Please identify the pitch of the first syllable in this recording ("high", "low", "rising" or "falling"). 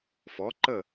rising